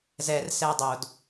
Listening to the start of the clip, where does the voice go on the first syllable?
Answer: low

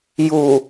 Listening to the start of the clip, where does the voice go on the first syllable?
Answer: low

